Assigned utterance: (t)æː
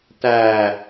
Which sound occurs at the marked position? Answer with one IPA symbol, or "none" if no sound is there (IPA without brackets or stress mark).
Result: t